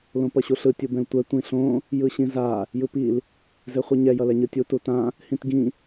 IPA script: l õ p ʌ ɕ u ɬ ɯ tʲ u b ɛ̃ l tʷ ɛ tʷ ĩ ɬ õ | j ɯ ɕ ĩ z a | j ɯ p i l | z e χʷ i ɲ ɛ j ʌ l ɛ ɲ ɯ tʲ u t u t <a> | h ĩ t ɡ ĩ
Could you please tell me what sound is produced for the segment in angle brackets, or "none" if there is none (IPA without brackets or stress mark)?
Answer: ã